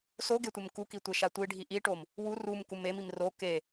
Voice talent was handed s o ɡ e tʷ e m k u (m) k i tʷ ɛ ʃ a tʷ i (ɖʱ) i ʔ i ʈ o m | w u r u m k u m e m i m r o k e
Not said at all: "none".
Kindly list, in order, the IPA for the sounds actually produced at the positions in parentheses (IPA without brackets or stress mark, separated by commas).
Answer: none, ɖʱ